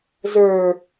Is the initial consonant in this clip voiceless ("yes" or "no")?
no